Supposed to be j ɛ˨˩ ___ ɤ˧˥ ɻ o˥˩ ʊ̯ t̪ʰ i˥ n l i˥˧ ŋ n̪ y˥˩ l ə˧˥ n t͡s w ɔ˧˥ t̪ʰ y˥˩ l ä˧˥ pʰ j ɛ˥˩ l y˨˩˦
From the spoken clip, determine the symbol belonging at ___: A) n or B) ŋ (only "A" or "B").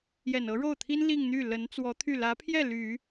A